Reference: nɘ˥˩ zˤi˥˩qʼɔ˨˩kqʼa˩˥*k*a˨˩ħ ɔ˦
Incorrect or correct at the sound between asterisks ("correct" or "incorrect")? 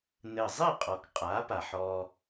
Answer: incorrect